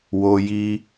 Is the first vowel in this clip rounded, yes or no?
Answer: yes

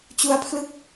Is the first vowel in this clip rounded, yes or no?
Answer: yes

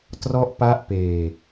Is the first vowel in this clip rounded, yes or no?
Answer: yes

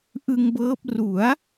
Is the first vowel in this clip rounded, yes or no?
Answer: no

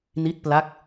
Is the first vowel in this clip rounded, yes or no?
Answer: no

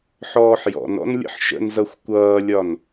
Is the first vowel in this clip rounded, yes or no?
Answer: yes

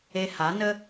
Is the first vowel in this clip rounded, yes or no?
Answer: no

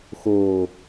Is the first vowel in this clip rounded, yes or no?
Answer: yes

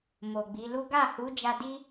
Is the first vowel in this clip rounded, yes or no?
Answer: yes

